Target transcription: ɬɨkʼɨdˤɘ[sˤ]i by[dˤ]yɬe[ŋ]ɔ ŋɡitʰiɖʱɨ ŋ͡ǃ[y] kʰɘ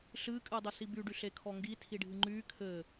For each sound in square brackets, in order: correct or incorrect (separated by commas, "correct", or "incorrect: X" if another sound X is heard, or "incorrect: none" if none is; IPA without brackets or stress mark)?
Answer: incorrect: s, incorrect: ɖ, incorrect: kʰ, correct